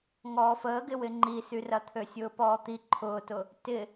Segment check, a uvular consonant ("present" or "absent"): absent